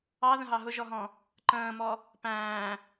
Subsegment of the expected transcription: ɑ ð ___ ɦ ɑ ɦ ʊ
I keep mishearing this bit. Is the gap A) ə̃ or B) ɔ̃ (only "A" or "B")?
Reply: A